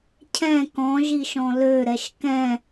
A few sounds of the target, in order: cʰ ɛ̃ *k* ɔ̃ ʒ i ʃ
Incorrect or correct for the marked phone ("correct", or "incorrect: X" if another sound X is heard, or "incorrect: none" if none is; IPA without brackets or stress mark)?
correct